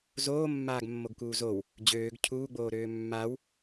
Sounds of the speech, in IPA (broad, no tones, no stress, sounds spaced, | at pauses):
z oː mː aː ɡ mː o ɡ k uː z o w | d͡ʑ øː ɡ cʰ uː ɡ͡b oː ɾ øː mː a w